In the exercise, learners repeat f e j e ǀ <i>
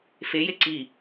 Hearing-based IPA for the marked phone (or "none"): i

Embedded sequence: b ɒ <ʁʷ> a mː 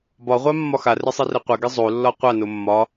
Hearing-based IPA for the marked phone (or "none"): ʁʷ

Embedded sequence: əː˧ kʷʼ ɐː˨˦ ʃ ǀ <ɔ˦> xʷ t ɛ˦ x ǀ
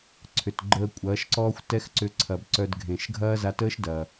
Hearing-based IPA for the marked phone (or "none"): ɔː˦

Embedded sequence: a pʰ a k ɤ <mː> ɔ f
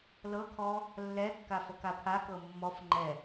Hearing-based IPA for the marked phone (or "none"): mː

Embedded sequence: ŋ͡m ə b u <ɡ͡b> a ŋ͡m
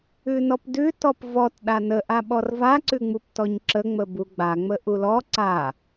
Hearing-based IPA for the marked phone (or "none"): ɡ͡b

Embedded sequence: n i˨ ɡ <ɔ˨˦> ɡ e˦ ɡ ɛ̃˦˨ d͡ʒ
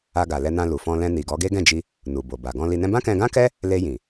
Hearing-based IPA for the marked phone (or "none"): ɔ˨˦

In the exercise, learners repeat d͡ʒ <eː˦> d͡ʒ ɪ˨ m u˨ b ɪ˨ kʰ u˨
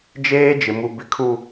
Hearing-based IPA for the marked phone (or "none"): eː˦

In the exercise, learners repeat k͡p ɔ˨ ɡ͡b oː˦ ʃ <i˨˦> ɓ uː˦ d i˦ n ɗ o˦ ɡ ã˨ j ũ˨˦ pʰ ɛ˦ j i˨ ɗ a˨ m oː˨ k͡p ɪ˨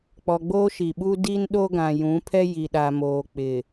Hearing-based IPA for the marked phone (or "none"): i˨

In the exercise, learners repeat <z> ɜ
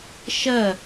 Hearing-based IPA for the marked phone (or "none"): ʃ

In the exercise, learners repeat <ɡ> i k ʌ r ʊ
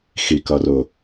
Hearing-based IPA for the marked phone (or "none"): x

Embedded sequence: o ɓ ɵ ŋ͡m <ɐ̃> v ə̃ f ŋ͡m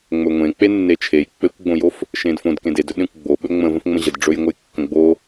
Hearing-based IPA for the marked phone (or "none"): ə̃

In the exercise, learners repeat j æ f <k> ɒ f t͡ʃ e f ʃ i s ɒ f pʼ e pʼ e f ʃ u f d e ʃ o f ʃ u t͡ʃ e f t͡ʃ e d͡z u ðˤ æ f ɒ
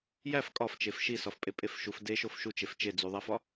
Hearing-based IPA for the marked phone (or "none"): kʼ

